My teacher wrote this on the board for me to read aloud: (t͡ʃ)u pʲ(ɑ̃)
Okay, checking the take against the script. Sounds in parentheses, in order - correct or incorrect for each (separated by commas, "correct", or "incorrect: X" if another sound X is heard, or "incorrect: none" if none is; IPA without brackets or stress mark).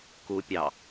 incorrect: k, incorrect: ɑ